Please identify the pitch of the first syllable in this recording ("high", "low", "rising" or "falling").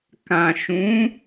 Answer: low